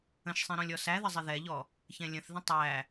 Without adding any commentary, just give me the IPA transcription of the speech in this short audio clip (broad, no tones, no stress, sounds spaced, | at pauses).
ə̃ ʃ sˤ ĩ ɾ ɔ̃ lʲ ɔ s æ ð ə zˤ ɪ ð ɛ ʎ ɔ | ç ɛ̃ lʲ ə̃ θ ð ə̃ tˤ æ